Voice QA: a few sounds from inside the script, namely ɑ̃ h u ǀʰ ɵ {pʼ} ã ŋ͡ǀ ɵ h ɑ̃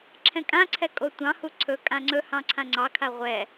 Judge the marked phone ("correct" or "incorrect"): incorrect